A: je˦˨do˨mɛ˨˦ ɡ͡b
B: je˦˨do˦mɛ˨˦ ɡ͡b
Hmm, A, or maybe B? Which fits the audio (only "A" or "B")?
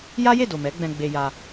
A